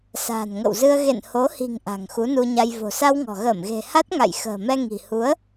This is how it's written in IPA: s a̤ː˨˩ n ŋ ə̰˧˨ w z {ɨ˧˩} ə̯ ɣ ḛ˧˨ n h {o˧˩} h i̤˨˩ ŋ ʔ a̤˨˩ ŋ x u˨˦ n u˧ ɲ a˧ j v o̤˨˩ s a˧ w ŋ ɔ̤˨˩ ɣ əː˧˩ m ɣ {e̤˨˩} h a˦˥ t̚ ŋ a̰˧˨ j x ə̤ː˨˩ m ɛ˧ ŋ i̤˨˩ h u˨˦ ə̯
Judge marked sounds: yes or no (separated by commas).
no, no, yes